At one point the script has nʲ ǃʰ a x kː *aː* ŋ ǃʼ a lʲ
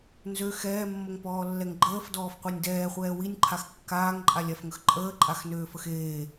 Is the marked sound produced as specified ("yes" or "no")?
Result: yes